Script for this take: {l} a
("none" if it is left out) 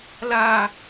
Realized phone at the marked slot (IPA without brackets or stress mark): l